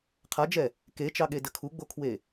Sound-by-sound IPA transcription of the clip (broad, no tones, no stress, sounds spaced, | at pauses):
qʰ a d͡ʒ ɛ | k e t͡ʃ ɑ ɠ e d ə kʰ u ɡ͡b o kʰ w e